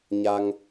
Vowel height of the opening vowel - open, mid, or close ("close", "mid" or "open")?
open